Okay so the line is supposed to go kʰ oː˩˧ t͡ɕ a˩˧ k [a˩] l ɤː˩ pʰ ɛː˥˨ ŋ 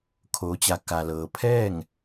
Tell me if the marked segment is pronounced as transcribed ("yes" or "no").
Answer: yes